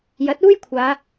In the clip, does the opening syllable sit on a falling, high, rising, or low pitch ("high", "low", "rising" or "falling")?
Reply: rising